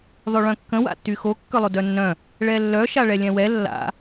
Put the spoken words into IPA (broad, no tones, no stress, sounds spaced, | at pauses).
ðˤ ø ɭ œ̃ kː ə̃ w a̰ tː y x o kː œ lˠ o d œ nː œ̃ | ɭ ɛ lː œ ʃ a ɭ ɛ lʲ ɛ̃ w ɛ lː a̰